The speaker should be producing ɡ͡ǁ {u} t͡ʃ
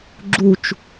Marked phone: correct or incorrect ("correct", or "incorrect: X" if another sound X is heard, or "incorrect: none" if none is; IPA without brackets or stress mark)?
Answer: correct